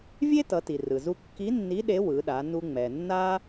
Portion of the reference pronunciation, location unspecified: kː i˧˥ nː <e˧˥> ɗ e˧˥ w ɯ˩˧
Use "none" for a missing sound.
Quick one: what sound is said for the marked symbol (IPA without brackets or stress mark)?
i˧˥